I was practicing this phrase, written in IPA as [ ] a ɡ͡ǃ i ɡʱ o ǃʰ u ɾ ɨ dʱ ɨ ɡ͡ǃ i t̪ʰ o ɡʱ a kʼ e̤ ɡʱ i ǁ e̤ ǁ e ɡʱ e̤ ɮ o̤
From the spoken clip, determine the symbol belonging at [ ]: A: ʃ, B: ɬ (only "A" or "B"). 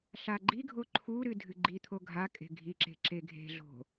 B